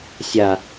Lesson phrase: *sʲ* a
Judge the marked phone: correct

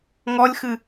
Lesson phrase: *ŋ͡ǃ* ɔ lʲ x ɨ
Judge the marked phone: incorrect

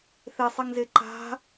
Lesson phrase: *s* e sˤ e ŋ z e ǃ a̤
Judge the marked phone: incorrect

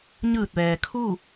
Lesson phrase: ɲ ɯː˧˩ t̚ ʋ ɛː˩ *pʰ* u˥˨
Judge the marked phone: incorrect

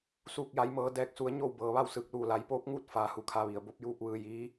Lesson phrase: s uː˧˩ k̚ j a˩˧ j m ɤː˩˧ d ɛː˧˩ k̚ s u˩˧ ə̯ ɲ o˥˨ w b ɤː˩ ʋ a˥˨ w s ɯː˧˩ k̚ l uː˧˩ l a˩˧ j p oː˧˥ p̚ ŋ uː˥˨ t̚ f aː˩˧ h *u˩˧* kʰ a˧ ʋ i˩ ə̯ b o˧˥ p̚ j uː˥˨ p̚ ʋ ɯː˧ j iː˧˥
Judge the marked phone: correct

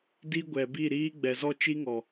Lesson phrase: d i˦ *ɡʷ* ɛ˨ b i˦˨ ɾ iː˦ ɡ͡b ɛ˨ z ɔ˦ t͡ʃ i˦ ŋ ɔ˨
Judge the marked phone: correct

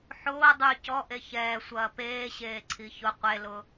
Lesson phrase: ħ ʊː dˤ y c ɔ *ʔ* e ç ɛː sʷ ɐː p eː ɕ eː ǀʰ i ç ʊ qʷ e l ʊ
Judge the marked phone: correct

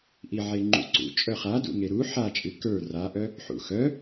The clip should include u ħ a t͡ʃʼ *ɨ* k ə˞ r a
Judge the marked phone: correct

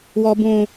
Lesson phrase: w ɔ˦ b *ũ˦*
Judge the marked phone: correct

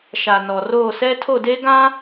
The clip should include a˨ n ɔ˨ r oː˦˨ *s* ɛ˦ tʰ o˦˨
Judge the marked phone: correct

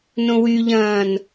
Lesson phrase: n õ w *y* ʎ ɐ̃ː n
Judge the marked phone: correct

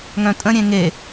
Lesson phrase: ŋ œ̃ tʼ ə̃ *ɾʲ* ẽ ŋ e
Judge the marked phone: correct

